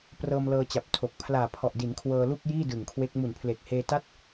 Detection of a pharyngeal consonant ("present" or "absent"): absent